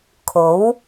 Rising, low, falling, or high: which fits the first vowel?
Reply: rising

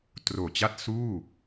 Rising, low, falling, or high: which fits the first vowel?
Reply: low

